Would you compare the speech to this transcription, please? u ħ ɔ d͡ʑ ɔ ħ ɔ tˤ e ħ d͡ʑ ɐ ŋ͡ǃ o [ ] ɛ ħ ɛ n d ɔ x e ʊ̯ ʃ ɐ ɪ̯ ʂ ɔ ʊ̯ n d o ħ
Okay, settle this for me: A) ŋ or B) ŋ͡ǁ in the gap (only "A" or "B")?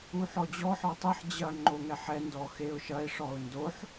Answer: A